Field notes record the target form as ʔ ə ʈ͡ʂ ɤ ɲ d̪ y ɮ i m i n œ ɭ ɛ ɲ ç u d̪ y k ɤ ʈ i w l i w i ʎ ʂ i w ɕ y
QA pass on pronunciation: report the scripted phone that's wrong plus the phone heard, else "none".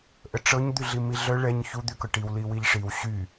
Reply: n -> ɮ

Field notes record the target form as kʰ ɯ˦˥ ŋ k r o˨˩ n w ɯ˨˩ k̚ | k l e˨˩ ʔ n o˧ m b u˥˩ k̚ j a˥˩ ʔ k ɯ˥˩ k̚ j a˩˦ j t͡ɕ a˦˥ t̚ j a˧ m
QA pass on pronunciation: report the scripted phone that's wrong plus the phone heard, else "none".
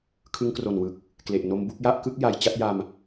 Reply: none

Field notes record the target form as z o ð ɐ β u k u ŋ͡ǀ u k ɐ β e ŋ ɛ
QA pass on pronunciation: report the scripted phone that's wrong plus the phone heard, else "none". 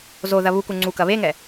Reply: none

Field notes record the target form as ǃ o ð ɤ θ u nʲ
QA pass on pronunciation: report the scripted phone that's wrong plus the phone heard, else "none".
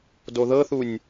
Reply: ǃ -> d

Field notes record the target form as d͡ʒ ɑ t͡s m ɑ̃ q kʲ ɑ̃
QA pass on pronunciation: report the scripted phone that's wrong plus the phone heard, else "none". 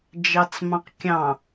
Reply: none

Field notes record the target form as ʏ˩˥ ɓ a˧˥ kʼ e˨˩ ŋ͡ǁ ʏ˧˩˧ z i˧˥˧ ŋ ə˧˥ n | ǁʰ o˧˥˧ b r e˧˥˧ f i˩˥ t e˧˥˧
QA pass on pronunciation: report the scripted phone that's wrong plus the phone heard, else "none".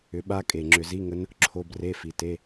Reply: none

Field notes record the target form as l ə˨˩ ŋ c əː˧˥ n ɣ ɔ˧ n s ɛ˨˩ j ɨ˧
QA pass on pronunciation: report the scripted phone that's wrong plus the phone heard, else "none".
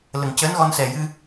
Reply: none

